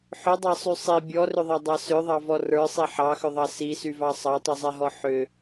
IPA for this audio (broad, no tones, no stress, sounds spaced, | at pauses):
ħ ʏ dˤ ɑ sˤ y sˤ i bʲ ɔ r ʏ ðˤ ɑ dˤ ɑ s ʏ ðˤ ɑ v ɔ r ə˞ sˤ i ħ ɑ x ʏ ðˤ ɑ s i s y v ɑ sˤ ɑ tˤ y zˤ ɛ ɦ ɔ ħ ʏ